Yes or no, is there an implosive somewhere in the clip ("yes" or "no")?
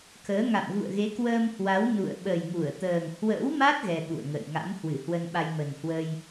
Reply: yes